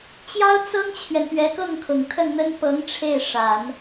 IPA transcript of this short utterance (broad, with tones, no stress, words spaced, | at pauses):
t͡ɕjɑ˥ʊ̯t͡sɤ˥ŋt͡ɕʰɥɛ˨n pɥɛ˧˥kɤ˥˩ŋkʰʊ˨˩ŋ t̪ʰə˥˩nn̪ə˥n pɤ˧˥ŋ ʈ͡ʂʰe˥˩ɪ̯ ʂa˨˩˦n